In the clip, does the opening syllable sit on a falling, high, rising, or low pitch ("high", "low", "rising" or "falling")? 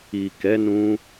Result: low